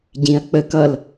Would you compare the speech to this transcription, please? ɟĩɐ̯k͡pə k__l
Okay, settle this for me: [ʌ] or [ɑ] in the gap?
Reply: ʌ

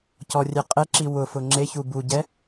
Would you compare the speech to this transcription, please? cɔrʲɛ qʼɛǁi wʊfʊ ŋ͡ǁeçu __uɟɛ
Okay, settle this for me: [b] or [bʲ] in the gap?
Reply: b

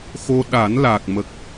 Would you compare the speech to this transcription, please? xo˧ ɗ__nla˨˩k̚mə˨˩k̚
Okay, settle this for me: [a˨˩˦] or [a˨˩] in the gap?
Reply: a˨˩˦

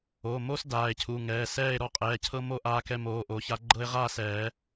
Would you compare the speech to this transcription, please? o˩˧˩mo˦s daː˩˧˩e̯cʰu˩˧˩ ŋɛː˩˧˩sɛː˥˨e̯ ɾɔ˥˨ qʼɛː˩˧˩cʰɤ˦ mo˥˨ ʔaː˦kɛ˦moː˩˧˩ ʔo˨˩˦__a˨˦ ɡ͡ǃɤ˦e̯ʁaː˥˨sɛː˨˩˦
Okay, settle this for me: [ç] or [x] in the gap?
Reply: ç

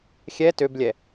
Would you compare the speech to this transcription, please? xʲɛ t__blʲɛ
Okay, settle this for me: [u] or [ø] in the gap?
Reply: ø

